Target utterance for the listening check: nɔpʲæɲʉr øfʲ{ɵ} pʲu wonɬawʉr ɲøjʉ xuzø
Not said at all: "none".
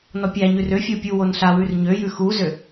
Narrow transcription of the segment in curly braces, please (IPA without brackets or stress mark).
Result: o